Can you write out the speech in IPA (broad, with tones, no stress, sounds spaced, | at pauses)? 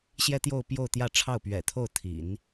ɕ j ɛ˥ t̪ j o˥˧ ʊ̯ p j o˥˧ ʊ̯ t̪ j ä˥˧ ʈ͡ʂʰ ɑ˥˩ ʊ̯ p ɥ ɛ̰˨˩ t̪ʰ o˥˩ ʊ̯ t̪ʰ ḭ˨˩˦ n